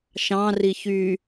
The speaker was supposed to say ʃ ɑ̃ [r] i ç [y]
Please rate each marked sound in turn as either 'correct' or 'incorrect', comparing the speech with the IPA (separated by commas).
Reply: correct, correct